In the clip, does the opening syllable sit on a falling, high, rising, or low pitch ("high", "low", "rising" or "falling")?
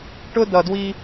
high